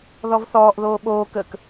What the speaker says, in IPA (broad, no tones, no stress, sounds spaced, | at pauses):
ð ɔ v θ ɔː ʔ ð oː ɓ oː k əː k